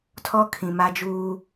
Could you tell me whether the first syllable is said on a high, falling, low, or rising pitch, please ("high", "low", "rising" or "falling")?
high